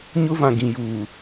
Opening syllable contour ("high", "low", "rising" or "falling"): high